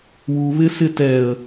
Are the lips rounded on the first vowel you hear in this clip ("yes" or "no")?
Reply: yes